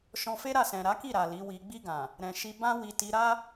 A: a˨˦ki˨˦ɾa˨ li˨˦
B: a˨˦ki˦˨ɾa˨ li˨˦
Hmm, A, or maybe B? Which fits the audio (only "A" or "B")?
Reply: B